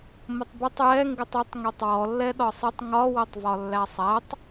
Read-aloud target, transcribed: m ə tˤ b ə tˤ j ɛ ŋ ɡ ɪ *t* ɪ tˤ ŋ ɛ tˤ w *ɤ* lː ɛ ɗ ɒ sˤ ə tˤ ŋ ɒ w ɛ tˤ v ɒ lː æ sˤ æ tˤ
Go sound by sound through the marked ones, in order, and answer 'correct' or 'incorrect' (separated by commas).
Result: incorrect, incorrect